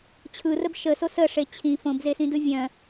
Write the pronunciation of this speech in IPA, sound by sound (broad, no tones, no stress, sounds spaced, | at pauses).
t͡ɕʰ ɯ r ə b ʃ ə s o s ə ʂ e t͡ɕʰ ĩ f õ b z e s ĩ d ɯ vʲ œ̃